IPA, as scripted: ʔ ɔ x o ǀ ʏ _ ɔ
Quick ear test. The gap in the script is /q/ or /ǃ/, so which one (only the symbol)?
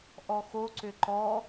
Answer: ǃ